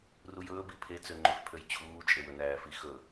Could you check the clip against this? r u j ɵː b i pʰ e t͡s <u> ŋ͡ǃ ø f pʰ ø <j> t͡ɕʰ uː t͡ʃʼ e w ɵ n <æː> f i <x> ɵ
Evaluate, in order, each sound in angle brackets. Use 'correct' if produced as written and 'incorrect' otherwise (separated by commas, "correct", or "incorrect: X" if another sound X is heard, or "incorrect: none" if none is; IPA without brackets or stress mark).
incorrect: ø, correct, correct, correct